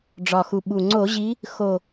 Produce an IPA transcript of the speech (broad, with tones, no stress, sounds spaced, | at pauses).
ɖ͡ʐ ɒ˨˩ x u˨˩ ɓ u˨˩ ŋ͡ǀ o˧˩˧ ʑ i˨˦ | x o˨˩